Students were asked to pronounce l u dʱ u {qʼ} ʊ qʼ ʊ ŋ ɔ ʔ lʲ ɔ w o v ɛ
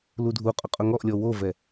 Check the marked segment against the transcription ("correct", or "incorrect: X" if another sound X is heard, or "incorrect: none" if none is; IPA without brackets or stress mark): correct